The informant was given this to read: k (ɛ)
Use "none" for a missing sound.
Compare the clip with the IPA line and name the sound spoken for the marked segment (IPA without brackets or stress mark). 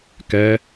ɛ